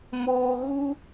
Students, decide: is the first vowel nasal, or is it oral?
oral